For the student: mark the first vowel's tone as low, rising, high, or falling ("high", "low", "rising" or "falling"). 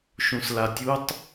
low